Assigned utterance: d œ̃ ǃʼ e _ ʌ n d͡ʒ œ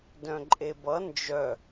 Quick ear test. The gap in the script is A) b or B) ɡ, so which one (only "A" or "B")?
A